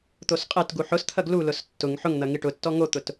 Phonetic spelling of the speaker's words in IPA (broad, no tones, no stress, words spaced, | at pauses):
t̪osqʼetɡu ħʊst̪ʰɐɡ lulʊs tːʊŋ ħʊŋn̪ɐ ŋiʈʊtːɔ ŋot̪ʊt